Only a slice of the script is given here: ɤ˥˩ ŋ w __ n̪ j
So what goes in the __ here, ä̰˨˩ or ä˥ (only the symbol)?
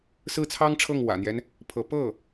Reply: ä̰˨˩